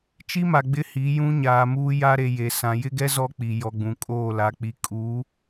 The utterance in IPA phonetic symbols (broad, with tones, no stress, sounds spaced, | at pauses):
t͡ʃ i˦ m a˨ ɡ͡b ɪ˦ h i˨˦ j ũ˦ ɲ aː˨ m uː˦ j a˦ ɾ e˨ j e˨ s ã˨ j ɪ˦ ɡ ɛ˦ z ɔ˦ k͡p i˨ j ɔ˨ ɡ͡b ũ˨ kʼ oː˦˨ l a˨ k͡p i˨ kʼ uː˨˦